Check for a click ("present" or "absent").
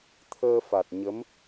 absent